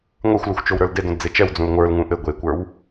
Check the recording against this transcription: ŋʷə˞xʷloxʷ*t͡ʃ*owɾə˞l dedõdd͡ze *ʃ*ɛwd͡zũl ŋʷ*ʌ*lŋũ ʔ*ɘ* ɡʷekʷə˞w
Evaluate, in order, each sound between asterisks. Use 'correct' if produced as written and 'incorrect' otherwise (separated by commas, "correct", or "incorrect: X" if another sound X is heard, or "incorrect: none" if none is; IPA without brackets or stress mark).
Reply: correct, incorrect: t͡ʃ, incorrect: ə˞, correct